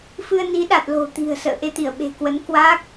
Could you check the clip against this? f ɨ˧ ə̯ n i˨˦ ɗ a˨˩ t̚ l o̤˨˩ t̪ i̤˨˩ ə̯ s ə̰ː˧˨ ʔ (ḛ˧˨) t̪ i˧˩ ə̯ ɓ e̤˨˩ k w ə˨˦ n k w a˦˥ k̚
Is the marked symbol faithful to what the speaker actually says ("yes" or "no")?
no